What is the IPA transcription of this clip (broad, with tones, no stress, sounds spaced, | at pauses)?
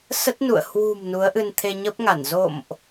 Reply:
s ə˦˥ t̚ n ṵ˧˨ ə̯ h w ṳ˨˩ m n u˨˦ ə̯ ʔ ɨ˧ n t̪ʰ e˧ ɲ ə˦˥ p̚ ŋ a˧˩ n z o̰˧˨ m ʔ